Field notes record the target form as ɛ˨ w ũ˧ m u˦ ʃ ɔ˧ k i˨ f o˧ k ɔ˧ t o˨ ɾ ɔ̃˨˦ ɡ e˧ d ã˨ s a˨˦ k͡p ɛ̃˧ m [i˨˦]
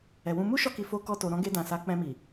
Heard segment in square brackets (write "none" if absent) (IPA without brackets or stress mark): i˨